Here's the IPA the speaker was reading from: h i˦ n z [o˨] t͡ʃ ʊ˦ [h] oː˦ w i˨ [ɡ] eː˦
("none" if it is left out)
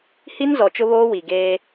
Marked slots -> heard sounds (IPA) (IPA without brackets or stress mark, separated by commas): ɔ˨, β, ɡ